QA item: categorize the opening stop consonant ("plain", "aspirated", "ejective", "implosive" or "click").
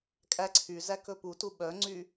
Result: ejective